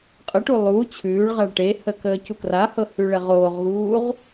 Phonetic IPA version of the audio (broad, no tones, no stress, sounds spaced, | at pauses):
qʼ ə ʈ u lˠ u t͡ɕʰ ʉː ɭ ʁ a ɭ ʈ e h ə k əː c u k r a h ɤ h ʉ ɭ ɛ ʁ oː ʁ ɣ uː ʁ